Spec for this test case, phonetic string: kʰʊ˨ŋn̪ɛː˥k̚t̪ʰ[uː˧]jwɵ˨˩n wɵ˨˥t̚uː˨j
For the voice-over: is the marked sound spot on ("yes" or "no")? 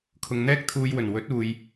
yes